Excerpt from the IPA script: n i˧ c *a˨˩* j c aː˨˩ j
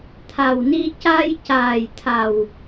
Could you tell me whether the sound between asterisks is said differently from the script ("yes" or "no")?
yes